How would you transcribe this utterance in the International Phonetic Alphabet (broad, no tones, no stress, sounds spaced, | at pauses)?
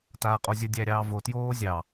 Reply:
t aː qʼ o zʲ ə dʲ æ ɾʲ ɑː v o t j oː zʲ ɑ